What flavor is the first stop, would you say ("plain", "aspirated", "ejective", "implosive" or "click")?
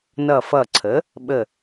click